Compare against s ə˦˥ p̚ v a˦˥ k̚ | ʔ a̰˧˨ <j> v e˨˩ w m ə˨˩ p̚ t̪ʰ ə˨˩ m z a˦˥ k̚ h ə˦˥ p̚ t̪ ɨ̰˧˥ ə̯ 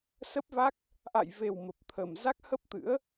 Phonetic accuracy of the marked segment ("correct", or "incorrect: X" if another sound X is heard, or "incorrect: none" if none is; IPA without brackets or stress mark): correct